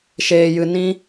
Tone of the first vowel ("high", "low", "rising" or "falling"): high